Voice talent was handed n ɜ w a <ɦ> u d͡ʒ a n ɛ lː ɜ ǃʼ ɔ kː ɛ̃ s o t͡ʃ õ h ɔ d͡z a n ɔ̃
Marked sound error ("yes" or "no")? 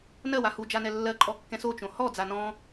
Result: yes